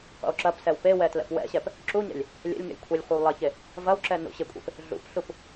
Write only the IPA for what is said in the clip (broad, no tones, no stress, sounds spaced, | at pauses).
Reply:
qʷ ḛ w ǁ ɐ p s ɛ w p e w ɛ t l ɛ̰ p w ɛ̰ ɕ ɛ p | ǁ u ɲ ɛ̰ lʲ | lʲ ɛ̰ lʲ ŋ ɛ̰ lʲ kʷʰ ɛ lʲ χʷ ɐ w lˠ ɐ ç e | v ɐ w ǁ ɛ n ṵ ɕ ɪ kʷʼ ḛ p | ɮ ṵ p ɬ u p